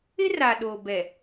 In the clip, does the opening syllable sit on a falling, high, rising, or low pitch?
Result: high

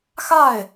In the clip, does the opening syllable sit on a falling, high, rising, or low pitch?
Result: falling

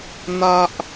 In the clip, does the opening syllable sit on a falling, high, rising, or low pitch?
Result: low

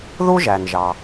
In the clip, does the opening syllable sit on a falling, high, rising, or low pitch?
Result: high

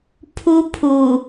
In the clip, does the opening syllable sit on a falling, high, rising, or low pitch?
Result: high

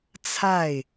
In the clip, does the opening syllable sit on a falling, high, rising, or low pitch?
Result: falling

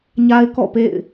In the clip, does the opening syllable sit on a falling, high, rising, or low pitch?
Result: high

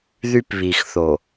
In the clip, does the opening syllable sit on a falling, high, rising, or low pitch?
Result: high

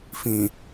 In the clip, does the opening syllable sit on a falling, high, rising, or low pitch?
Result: low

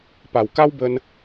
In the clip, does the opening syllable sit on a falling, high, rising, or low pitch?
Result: low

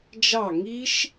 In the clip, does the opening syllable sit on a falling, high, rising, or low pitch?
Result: falling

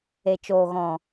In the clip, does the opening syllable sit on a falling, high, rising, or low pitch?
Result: low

